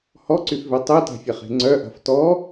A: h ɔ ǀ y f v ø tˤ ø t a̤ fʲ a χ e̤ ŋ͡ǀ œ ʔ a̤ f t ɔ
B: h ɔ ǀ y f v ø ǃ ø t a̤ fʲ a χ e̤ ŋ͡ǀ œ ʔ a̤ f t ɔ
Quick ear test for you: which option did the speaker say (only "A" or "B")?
A